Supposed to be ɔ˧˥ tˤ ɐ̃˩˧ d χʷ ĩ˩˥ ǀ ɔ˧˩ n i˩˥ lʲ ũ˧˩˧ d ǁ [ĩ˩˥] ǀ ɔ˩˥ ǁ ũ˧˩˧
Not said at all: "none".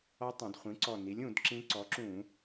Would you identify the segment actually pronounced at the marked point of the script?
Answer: ĩ˧˥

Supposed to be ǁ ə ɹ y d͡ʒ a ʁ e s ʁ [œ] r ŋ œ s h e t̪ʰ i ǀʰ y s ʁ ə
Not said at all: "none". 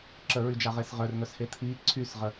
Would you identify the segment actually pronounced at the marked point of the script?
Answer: œ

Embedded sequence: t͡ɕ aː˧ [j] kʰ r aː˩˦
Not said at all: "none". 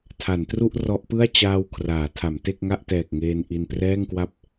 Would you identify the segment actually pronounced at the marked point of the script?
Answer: w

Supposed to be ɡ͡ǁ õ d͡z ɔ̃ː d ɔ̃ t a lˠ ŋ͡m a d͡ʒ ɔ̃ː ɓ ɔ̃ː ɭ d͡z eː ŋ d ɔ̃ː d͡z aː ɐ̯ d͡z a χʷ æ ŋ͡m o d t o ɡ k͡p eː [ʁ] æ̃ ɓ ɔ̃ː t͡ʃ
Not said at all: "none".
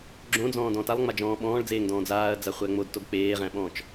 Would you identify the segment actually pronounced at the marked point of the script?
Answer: ʁ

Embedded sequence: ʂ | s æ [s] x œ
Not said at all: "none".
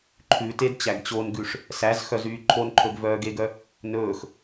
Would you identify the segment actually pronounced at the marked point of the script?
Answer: z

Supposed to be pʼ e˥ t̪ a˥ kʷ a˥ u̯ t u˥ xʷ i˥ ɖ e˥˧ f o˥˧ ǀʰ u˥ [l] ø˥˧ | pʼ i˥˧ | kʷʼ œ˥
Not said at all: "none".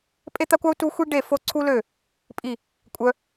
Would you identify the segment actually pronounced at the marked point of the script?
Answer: l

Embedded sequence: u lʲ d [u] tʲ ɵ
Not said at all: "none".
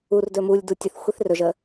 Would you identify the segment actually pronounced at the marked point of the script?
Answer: u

